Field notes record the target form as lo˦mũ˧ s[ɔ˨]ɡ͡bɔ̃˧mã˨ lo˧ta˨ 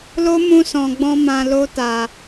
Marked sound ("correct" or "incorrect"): incorrect